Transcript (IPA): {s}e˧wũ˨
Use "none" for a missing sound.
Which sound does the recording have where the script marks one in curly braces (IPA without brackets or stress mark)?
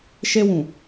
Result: ʃ